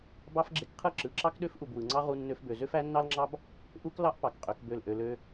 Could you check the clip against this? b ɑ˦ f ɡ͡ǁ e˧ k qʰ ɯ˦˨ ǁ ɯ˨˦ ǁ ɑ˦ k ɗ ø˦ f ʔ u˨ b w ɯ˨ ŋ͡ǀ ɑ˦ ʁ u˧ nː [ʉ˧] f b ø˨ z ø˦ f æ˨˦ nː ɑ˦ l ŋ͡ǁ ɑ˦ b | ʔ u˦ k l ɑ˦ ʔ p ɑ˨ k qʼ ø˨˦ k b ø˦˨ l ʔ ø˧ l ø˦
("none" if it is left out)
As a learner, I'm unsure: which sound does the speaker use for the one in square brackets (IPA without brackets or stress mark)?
ø˧